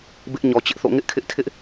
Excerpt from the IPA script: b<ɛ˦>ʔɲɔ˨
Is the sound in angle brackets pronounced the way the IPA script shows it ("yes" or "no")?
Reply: no